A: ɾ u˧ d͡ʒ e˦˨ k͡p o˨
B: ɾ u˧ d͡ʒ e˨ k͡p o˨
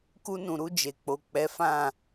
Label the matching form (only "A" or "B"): B